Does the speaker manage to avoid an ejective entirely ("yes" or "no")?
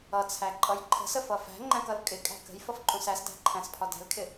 no